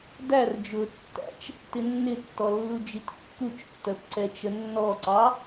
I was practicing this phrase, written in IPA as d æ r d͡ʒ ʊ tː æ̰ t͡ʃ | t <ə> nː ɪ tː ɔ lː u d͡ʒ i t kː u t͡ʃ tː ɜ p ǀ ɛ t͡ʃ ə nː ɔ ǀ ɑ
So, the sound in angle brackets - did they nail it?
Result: no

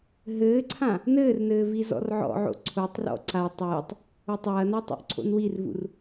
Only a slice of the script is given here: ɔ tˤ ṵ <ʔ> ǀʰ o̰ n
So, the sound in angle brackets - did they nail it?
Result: yes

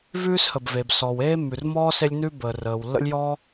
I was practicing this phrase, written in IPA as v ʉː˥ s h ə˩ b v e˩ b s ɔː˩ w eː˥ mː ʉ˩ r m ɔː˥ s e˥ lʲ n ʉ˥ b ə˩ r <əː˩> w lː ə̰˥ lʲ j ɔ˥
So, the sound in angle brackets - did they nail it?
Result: yes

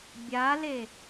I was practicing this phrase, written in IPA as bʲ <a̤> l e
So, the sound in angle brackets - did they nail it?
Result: no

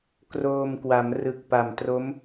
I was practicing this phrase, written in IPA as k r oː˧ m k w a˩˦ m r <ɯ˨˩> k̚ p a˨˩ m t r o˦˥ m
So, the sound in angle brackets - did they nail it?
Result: yes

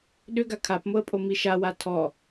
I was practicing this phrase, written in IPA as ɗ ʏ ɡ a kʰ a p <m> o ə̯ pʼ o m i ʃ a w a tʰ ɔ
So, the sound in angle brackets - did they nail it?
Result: yes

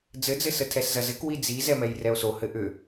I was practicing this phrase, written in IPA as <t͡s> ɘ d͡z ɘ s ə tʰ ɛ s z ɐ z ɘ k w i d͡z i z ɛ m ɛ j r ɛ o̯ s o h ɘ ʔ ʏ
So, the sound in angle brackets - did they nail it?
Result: no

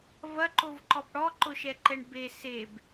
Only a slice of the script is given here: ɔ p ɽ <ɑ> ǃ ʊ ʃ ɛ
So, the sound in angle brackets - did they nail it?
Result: no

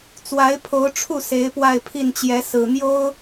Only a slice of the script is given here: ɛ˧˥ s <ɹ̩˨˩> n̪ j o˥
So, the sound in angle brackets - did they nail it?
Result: yes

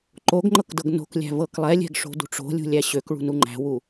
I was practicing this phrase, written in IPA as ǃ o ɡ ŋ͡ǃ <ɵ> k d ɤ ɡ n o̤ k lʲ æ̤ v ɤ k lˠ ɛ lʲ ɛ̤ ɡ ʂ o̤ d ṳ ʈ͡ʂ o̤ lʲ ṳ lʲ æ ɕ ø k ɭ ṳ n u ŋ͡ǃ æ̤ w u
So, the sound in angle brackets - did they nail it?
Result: no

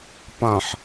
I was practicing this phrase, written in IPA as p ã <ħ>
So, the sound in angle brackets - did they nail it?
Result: yes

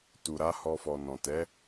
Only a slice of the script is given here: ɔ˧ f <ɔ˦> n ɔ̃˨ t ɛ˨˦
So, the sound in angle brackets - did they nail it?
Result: no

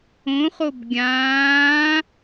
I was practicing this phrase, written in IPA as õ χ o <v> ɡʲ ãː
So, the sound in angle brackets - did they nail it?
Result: no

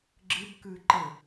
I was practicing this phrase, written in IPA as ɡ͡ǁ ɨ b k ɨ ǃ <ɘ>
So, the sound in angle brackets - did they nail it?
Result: yes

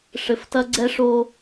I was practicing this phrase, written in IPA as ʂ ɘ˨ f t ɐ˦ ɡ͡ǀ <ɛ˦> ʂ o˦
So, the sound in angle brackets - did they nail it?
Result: yes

